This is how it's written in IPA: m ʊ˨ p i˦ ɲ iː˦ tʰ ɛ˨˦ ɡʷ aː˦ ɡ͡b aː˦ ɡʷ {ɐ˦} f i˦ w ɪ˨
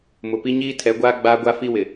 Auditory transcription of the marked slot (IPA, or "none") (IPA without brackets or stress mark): a˦